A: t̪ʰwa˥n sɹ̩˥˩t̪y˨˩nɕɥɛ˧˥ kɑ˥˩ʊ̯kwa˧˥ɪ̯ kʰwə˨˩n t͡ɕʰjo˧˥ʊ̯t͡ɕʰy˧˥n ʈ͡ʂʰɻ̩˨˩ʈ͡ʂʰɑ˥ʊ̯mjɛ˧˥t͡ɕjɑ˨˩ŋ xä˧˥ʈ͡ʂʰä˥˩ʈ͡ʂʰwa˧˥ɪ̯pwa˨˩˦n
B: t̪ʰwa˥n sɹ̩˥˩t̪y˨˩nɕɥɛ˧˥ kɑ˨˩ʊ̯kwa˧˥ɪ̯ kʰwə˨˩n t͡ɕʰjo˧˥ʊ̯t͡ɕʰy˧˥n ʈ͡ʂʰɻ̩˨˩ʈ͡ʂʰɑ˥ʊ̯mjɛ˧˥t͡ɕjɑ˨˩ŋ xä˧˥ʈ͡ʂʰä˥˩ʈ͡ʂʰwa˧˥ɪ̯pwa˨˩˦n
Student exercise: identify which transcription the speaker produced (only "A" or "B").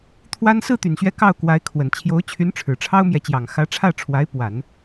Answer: A